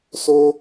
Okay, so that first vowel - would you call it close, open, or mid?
mid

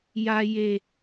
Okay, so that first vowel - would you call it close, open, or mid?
open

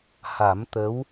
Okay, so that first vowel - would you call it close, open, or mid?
open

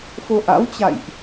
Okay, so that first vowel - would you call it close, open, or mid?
mid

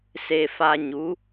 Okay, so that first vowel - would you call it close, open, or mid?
mid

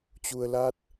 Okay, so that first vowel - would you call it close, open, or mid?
close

